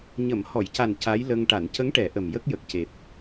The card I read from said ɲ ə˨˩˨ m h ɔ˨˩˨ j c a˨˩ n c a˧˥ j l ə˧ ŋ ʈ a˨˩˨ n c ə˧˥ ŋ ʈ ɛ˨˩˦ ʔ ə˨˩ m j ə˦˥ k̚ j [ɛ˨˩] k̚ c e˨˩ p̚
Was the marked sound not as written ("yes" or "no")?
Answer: yes